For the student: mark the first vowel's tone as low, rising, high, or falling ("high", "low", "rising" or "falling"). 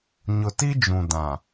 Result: low